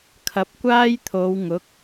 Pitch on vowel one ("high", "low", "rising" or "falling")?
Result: rising